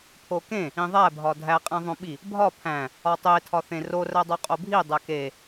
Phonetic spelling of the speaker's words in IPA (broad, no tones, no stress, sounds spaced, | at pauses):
pʰ o k ẽ | ĩ ðˤ æ bʱ ɒ dʱ æ qʼ ẽ ðˤ õ ɓ i | bʱ ɒ pʰ æ̃ | ɒ tˤ e tʰ ɒ θ ẽ r o r æ dˤ o qʼ o bʱ i dˤ æ k e